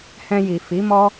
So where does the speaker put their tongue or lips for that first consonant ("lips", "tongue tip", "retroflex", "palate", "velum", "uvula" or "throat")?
throat